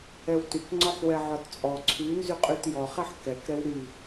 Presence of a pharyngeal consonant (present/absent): present